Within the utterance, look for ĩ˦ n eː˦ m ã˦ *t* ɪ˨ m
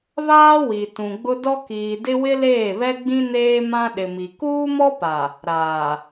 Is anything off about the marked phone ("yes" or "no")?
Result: yes